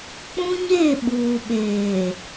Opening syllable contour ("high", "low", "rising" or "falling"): high